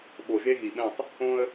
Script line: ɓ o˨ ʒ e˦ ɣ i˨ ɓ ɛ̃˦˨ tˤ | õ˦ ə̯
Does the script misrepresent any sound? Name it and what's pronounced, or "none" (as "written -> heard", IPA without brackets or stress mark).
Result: none